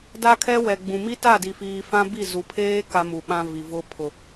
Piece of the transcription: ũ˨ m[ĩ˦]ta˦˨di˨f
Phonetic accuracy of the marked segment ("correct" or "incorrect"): incorrect